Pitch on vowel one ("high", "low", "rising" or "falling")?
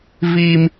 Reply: high